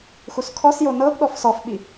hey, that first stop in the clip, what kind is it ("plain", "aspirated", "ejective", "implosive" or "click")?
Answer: aspirated